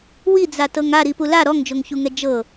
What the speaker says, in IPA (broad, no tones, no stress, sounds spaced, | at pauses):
w i d͡z a t ɤ ŋ a ɾ i p u l a ɾ ɔ ŋ d͡ʒ o ŋ ç u ŋ ɛ d͡ʒ ɤ